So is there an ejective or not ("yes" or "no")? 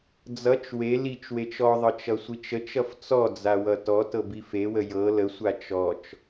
no